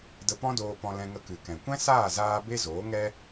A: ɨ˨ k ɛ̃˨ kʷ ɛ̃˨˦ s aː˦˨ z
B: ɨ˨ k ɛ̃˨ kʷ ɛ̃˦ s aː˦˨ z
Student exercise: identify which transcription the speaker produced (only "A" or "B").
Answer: B